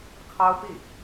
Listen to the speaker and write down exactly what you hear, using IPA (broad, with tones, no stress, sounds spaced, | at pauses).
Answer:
kʰ ɑ˥ ʊ̯ p i˥˩